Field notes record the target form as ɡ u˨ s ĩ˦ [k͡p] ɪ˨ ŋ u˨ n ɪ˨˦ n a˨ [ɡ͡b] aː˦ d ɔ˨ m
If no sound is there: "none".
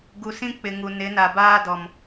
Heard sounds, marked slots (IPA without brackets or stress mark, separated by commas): k͡p, b